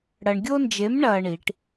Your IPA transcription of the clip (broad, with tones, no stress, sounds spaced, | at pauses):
ɽ ɐ˧ ɳ ɡʲ o˥ n d͡ʒ e˧˥ m ɳ ɐː˧ ɳ i˩˧ ʈ